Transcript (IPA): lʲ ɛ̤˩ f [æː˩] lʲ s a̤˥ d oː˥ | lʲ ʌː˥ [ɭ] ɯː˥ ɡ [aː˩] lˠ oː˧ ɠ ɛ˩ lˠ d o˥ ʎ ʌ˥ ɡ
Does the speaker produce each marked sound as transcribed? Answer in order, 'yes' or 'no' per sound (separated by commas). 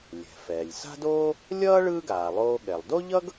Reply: no, yes, yes